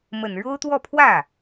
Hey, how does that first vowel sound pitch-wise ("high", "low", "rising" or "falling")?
low